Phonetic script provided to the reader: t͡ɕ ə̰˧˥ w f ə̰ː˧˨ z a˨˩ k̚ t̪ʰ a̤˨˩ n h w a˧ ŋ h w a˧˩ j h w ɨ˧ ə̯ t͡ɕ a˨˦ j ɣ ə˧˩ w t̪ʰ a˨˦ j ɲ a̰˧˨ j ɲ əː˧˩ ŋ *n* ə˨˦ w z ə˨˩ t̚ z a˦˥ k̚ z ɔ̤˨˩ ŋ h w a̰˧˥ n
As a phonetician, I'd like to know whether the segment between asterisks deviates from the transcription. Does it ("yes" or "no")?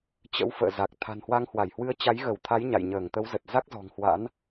yes